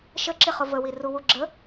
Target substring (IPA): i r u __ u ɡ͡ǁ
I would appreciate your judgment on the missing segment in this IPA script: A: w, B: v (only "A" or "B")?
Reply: A